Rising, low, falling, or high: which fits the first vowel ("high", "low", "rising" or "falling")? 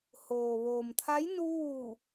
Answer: low